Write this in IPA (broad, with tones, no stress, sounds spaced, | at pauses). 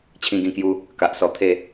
t͡ɕʰ ĩ˧ ɡ ĩ˧ k j u˧ | k a˨ ʔ s ɔ˧ t̪ʰ e˥˧